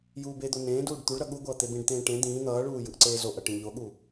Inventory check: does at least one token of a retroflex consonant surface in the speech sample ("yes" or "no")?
yes